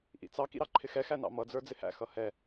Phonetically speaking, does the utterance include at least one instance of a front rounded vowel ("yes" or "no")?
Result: no